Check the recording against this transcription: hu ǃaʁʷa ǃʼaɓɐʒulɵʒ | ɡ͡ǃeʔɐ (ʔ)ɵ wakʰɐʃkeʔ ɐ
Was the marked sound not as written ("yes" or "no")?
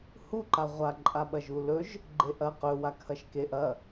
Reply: yes